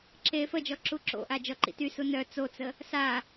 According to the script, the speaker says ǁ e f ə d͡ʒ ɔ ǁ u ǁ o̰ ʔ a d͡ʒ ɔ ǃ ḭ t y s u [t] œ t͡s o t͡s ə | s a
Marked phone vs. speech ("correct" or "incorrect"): incorrect